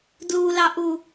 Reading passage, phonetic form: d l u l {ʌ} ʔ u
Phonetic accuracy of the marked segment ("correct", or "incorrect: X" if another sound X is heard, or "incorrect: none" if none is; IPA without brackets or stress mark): incorrect: ɑ